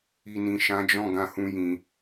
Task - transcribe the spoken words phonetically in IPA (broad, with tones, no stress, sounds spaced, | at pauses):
i˨ n ĩ˨ ʃ ã˨˦ d͡ʒ ɔ̃˦˨ ɡ ã˧ h ũ˦ j ĩ˧